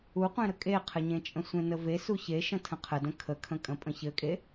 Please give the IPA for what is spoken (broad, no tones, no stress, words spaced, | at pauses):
uqʷẽɾə kʼeqʰɘɲẽt͡ʃʼə̃ sʷẽnəve suçe ʃə̃tʰə̃qʰə də̃kʰəkʰə̃kʼə̃ pʼə̃çɘkʼe